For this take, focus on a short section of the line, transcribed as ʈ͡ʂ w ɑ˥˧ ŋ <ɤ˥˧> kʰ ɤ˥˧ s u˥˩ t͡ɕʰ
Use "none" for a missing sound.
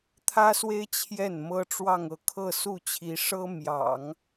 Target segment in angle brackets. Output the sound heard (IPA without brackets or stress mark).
ɤ˥˧